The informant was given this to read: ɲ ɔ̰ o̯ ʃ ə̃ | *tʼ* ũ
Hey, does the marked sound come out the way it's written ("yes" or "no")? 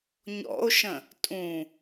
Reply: yes